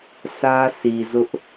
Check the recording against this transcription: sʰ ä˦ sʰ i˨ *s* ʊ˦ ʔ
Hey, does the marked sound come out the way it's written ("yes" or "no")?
no